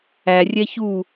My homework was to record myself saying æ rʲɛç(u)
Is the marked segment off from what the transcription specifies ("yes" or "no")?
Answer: no